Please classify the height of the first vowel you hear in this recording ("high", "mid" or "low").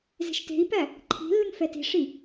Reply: mid